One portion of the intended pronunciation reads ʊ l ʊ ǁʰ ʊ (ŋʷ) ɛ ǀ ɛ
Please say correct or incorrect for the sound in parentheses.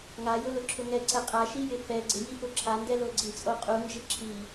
incorrect: ŋ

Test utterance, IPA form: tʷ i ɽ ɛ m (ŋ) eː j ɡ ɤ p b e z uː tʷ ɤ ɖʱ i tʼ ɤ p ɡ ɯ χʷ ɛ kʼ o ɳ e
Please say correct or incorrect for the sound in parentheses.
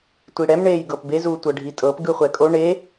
incorrect: ɳ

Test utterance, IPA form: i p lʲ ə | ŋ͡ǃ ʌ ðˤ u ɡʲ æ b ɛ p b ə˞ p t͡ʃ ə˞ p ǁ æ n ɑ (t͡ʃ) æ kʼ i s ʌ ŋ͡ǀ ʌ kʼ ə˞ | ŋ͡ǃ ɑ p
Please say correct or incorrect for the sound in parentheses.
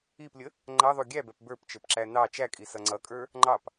correct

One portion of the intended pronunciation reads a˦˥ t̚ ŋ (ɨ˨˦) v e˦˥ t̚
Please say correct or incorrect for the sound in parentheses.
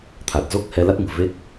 incorrect: ɨ̤˨˩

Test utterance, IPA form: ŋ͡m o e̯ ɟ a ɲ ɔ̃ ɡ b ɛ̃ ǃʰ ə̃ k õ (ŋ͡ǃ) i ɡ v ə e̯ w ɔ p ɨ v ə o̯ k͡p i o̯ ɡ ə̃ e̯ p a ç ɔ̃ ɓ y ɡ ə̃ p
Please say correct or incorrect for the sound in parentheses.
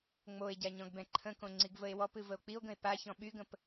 incorrect: ŋ͡ǀ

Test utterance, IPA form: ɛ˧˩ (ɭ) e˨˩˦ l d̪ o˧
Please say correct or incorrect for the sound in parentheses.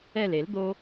incorrect: l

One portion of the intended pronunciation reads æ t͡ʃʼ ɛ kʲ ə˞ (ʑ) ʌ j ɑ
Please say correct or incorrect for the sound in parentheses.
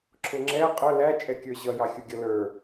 correct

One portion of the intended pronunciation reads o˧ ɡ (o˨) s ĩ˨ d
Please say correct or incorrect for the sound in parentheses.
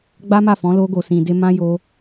correct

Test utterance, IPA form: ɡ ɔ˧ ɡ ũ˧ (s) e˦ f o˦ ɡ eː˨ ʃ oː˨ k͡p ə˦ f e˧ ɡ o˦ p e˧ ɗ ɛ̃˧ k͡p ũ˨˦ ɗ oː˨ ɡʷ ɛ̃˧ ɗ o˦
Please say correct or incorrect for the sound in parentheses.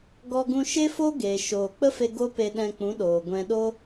incorrect: ʃ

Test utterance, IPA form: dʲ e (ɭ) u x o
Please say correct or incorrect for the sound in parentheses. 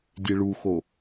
correct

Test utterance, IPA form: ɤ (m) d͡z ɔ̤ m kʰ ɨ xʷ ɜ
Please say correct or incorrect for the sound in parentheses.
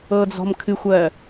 incorrect: none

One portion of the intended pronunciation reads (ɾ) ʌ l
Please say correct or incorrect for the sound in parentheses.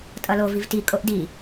incorrect: tʼ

